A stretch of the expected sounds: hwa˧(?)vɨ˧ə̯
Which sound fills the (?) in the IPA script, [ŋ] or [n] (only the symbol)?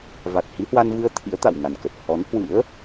n